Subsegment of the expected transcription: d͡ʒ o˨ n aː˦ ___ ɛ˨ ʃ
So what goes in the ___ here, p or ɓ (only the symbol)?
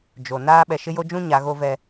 ɓ